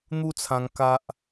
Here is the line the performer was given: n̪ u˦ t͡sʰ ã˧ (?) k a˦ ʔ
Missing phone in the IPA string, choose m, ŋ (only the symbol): ŋ